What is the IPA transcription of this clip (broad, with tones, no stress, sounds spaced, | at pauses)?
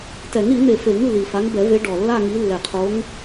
t ɛ˨˩˦ ŋ ɾ i˨˩˦ n̪ e˨˩ f e˨˩˦ ŋ lː i˨˩ f a˨˦ ŋ b ɛ˨˩˦ v e˨˦ ɖ ɔ˨˩ lː a˥˧ ŋ i˨˦ lː ɛ˨˩ qʰ o˨˦ ŋ